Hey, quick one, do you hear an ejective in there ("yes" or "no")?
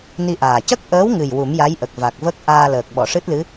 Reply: no